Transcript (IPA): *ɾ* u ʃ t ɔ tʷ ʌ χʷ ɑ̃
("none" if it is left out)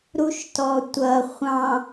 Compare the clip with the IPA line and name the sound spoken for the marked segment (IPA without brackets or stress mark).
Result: ɾ